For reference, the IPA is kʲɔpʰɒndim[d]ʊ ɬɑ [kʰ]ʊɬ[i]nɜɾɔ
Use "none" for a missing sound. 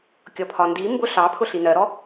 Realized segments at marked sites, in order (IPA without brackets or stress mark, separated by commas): b, pʰ, i